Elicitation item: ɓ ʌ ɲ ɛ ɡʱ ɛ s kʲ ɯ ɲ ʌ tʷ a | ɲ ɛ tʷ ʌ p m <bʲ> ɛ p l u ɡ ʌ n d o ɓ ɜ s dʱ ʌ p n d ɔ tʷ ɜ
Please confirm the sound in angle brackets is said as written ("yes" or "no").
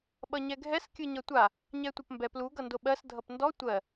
no